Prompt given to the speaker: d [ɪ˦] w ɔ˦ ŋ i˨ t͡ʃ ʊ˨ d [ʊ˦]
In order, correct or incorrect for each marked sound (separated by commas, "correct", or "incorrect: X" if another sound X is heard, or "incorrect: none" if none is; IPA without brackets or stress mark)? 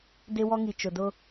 correct, correct